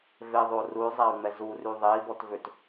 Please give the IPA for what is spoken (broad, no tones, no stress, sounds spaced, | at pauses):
v e ðˤ o r u y̯ zˤ a y̯ ŋ͡m ɛ z u r y ðˤ e i̯ b ɔ t v ø t